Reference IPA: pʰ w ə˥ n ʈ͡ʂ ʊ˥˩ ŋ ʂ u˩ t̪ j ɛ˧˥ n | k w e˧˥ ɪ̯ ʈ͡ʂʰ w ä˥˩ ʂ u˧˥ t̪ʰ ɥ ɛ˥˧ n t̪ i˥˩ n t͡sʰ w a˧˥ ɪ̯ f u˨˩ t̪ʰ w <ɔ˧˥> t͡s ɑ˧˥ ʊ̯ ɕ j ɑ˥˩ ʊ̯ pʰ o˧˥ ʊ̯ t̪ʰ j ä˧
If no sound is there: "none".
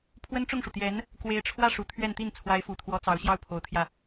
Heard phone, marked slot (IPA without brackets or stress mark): ɔ˧˥